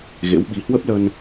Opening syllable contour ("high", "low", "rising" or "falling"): rising